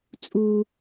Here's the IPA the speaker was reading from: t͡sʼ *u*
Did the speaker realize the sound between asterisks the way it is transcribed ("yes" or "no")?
yes